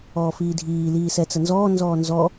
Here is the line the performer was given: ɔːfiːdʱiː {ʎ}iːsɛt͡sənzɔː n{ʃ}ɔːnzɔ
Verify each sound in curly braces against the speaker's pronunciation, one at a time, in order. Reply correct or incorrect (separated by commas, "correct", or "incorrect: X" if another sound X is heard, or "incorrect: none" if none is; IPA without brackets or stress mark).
incorrect: l, incorrect: z